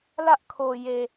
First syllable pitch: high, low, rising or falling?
high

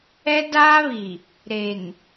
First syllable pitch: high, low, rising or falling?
high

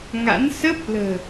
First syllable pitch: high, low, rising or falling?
rising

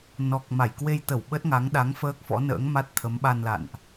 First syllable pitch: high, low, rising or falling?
low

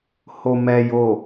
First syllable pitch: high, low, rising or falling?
low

